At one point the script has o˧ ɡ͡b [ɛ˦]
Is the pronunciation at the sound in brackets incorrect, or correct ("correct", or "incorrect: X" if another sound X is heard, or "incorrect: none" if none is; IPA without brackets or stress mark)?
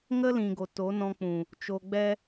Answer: correct